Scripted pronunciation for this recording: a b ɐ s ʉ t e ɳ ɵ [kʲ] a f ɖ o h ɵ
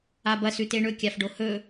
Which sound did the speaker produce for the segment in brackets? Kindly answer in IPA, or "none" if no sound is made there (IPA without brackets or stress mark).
kʲ